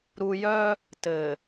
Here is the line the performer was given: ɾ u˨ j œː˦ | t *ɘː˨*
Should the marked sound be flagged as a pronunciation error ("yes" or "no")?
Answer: no